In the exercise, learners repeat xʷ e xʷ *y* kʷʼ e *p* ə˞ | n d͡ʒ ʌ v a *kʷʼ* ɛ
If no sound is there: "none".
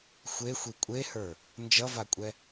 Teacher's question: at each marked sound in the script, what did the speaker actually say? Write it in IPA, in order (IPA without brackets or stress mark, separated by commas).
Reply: i, h, kʷʼ